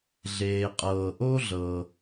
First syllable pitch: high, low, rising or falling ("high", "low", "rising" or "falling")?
low